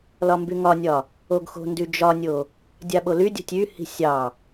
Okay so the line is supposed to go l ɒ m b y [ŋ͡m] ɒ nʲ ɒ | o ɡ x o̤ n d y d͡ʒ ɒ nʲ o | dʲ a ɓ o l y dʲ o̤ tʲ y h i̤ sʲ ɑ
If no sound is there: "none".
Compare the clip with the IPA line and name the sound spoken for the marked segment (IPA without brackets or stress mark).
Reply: ŋ